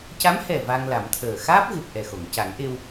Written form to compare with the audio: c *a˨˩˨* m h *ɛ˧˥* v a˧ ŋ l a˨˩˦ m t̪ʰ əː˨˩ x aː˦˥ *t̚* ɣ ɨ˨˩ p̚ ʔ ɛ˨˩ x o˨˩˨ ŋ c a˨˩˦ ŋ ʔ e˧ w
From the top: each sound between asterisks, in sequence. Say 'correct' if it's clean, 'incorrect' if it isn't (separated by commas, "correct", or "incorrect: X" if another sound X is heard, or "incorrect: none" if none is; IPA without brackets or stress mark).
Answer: incorrect: a˧˥, incorrect: ɛ˨˩, incorrect: p̚